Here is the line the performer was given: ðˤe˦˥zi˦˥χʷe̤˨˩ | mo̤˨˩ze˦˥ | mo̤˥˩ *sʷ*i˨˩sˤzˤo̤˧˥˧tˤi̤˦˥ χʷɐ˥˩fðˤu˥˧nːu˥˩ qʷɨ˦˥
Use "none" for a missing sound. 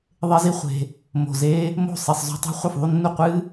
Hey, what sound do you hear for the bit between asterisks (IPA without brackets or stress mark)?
sˤ